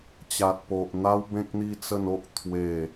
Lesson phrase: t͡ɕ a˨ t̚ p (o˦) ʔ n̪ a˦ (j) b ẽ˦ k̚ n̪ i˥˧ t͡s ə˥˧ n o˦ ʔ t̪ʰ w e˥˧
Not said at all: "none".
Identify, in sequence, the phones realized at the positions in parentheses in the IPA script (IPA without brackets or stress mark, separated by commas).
o˨, w